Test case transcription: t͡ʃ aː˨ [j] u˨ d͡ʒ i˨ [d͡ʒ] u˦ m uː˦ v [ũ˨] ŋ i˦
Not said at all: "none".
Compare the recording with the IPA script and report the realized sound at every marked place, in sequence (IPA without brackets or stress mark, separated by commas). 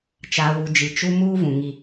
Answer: w, t͡ʃ, ũ˨